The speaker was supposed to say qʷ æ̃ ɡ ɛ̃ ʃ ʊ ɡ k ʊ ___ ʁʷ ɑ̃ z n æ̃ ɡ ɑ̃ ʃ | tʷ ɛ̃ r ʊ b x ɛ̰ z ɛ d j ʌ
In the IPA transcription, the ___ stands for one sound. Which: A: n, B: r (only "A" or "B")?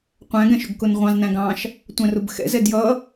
A